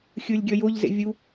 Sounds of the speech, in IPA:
xʲ ɯ lʲ ɡʲ ʌ j o ʎ z ḛ vʲ u

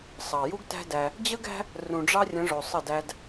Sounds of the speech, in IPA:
sˤ ɑ˨ j u˦ ɡ t æ̤˦ d æ˧ | d͡ʑ ə˦ ɡ æ̤˦ | r ũ˨ ɖ͡ʐ ɑ˦ rʲ ə̃˨˦ ʐ o˨ sˤ ə˦˨ d æ˦ d

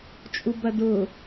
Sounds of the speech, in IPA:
t͡ʃʼ u b ɐ d ʊ

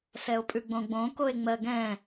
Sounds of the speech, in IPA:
s ɛ o̯ pʼ ʉ ɡ͡b õ ɡ͡b õ k o e̯ ŋ͡m ɜ ɡ ɛ̃

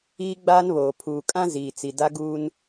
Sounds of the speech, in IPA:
iː˦ ɡ͡b aː˦ n β oː˨ pʰ uː˨ kʼ ã˦ z iː˨ t͡s i˨ d a˦ ɡ uː˦ n

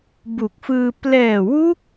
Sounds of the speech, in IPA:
b u˨˩ k̚ f ɯː˧ p l ɛː˨˩ w u˦˥ k̚

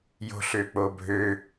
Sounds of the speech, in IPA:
j o̤ ɬ ø k͡p o bʱ ø

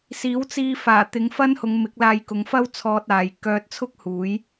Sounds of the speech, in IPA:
s iː˨˥ w t͡s iː˧ f aː˨˩ t̪ ɪ˨˧ ŋ f ɐ˥ n h ʊ˨˧ ŋ m ɪ˨˥ k̚ l aː˧ j k ʊ˨˧ ŋ f ɐ˥ w t͡sʰ ɔː˧ t̚ aː˨ j k œː˧ t̚ t͡sʰ ʊ˥ k̚ h uː˨˥ j

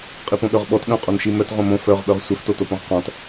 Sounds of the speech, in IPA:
qʼ i p õ ɠ œ ʁ ɓ ɔ t ɠ œ̃ qʼ o n ʃ i m œ t ʁ õ m õ f œ ʁ ɓ œ ʁ sʷ œ f t o t o p õ ʁ q ɔ̃ t

